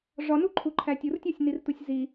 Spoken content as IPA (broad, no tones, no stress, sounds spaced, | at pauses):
ʐ ɒ n u ǃʰ u ǃʰ æ tʲ u r tʲ ɒ sʲ n i r t u sʲ z i